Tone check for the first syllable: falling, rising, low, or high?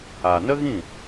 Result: low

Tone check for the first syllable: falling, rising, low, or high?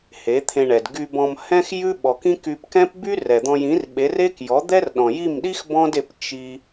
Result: rising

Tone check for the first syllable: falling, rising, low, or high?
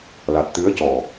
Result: low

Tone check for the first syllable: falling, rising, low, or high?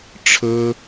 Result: high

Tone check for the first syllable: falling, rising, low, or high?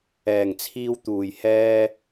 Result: low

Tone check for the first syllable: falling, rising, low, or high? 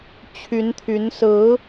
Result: rising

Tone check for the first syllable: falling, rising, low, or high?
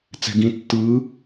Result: low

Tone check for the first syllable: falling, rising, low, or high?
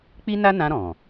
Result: high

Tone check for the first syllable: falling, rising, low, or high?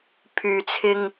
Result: low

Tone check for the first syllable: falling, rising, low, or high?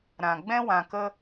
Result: low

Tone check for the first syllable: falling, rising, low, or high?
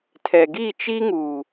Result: low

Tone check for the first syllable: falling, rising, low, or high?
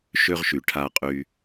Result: high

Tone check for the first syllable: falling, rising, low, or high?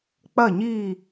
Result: falling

